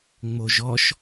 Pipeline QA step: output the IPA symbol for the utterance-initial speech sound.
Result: ŋ͡m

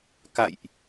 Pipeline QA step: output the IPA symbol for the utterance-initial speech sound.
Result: k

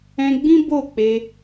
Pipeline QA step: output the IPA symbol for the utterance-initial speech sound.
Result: ɛ̃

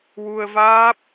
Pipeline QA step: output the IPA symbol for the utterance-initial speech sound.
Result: w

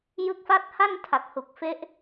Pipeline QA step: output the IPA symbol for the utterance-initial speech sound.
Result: j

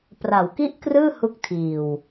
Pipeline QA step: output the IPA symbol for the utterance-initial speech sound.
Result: p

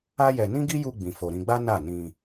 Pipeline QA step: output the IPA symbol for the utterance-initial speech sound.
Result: a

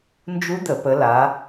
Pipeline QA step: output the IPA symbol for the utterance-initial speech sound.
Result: n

